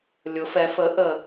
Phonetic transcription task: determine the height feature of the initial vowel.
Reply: high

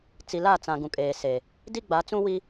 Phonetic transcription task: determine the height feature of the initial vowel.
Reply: high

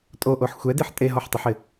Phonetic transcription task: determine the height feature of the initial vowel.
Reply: mid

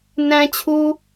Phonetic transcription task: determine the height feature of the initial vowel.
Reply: low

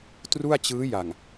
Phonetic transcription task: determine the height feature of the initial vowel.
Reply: high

